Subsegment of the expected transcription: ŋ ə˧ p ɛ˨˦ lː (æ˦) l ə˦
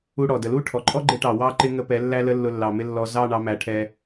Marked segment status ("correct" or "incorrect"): correct